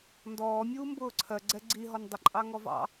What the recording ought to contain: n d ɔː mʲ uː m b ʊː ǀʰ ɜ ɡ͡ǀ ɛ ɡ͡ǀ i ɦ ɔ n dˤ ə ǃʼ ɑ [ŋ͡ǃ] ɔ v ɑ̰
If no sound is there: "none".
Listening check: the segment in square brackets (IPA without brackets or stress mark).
ŋ